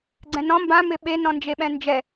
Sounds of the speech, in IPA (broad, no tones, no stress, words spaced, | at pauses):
ɡ͡ǀɛ̃nɔ̃ mbã mɪɓe nɔ̃nd͡ʒeɓɛ̃nd͡ʒɛ